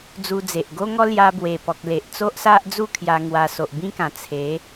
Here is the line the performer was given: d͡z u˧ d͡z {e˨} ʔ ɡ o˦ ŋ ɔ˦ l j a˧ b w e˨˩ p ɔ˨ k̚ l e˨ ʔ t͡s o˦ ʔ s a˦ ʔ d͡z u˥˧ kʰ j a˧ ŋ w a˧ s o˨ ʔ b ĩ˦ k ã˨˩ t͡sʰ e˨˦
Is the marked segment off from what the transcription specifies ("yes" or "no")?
no